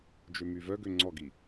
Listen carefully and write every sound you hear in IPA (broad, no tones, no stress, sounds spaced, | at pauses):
d͡ʒ ø m y v œ ɡ ø ŋ͡ǀ ɔ ɡ i